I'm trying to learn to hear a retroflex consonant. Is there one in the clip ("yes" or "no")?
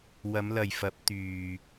no